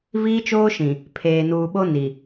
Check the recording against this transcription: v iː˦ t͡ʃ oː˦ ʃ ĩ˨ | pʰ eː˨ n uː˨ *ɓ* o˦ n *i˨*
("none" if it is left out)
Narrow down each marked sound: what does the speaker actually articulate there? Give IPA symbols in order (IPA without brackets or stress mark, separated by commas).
ɓ, i˨